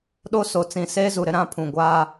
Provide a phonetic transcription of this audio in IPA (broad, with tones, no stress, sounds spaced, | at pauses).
ɗ o˦ s o˨ t͡s ĩ˨ s eː˦ z u˨ ɾ ɪ˦ ɾ ã˦ pʰ ũ˨ ɡʷ aː˦